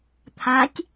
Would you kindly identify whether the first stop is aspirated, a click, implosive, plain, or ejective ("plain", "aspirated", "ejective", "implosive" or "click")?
aspirated